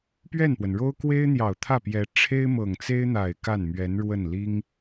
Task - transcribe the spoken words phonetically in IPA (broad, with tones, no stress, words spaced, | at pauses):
pɥɛ˥˩npwə˩nɻo˥ʊ̯ kwe˥ɪ̯n̪jɑ˨˩ʊ̯ t̪ʰä˥˩pjɛ˧˥ ʈ͡ʂʰe˥ɪ̯mɤ˨˩ŋt͡se˥ɪ̯n̪a˨˩ɪ̯ ka˥˩nmɥɛ˧˥n ɻwə˥˩n li˥ŋ